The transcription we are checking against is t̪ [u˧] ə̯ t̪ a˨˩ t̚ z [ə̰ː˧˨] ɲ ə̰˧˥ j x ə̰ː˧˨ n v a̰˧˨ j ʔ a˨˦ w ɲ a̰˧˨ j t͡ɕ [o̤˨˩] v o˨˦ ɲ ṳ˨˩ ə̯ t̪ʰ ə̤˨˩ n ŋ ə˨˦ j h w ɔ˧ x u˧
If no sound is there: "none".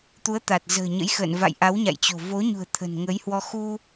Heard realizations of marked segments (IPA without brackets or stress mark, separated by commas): u˨˦, ə̤ː˨˩, o̤˨˩